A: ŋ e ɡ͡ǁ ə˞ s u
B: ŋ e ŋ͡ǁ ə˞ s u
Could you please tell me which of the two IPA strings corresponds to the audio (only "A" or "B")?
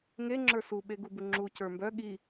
B